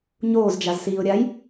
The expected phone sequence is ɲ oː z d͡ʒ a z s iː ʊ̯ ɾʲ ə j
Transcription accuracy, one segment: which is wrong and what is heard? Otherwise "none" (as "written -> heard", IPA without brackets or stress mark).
ə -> a